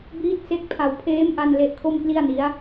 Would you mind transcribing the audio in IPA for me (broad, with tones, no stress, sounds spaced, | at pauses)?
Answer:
b iː˦˥ t̚ s e˦˥ k̚ pʰ a˧ w pʰ eː˦˥ m ʔ a˧ n l e˦˥ ʔ kʰ o˥˩ m k l i˥˩ a̯ n i˦˥ a̯